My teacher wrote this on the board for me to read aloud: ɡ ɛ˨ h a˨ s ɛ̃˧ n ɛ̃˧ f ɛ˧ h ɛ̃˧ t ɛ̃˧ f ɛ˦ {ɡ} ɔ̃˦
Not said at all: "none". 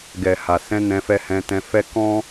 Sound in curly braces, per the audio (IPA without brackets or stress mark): k